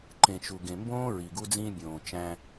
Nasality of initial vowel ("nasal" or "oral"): nasal